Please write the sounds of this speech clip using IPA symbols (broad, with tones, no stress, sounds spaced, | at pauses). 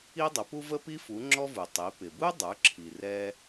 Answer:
i˦ dˤ ʊ˩˧ p u˦ v ə˦ p i˦ f u˩˧ ŋ͡ǁ ɔ˦ v u˩ tˤ i˩˧ p ɪ˩ b u˦ dˤ ə˞˩˧ ǁʰ i˩ r ɛ˦